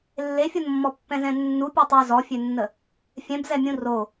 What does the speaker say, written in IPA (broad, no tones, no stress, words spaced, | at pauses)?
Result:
lːefʲonmːɔ pːɛ̃zɛ̃nːu pʲotˤœ zɔfʲønːə | fʲɛ̃bzɛmʲũ ro